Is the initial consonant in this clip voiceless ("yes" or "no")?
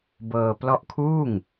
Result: no